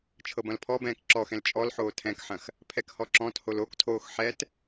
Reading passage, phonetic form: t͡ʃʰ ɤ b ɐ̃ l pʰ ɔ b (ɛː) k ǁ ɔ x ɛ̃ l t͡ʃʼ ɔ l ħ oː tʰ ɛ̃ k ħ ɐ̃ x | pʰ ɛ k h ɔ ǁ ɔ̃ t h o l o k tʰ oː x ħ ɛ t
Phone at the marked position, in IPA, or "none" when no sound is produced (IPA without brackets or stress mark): ɛ̃ː